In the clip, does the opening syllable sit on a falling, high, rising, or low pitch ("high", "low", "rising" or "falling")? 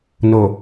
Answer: low